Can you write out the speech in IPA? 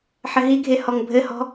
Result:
ħɘɦiɡʱe hɔŋbʱɘhɔ̤

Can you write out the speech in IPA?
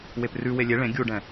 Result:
weprʉwe lʲe ɭẽ ɡʲuɖɛ̃

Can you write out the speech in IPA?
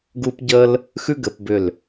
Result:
ɡu˧pɟə˧l | xʉ˥ɡɘ˩˧pbʏ˧˩l

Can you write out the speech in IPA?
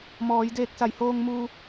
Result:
mɔː˩˧jdeː˧k̚ sa˩˧j hoː˧ŋ muː˧

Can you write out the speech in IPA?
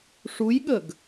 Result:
ʂujɠəɡ

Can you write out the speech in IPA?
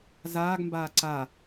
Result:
zaːɡmbaː ǀa

